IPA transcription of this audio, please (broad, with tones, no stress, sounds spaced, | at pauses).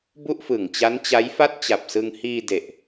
b u˥˩ ʔ f ɯ˨˩ ŋ t͡ɕ a˦˥ n t͡ɕ a˦˥ j f a˥˩ t̚ t͡ɕ a˨˩ p̚ s ɯ˧ ŋ h iː˧ d e˨˩ ʔ